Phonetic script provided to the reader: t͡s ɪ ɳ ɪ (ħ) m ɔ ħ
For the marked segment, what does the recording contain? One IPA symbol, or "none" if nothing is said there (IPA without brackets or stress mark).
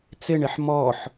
ħ